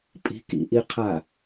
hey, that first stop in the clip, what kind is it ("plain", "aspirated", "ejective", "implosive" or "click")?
ejective